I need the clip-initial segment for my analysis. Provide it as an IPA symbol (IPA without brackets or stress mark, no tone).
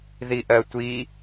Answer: ð